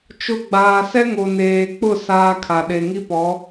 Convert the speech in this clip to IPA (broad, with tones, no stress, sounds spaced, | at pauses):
t͡ʃ ʊ˨ ɡ͡b aː˨ s ɛ˦ ŋ o˨ n eː˨ k͡p ʊ˦˨ s aː˦ kʰ a˨ ɗ e˨ ŋ i˦ p ɔ˨˦